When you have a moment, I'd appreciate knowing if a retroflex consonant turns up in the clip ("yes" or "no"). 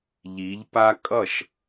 no